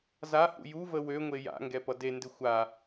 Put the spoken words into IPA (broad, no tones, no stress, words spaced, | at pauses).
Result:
zahṵ juvə wøŋʷe ja̰ŋɡɛpʌ dendɪ xʷa